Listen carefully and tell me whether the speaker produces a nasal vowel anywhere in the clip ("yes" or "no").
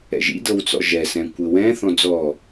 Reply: yes